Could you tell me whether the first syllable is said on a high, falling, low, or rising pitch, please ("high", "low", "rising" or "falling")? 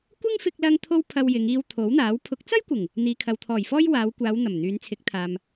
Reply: high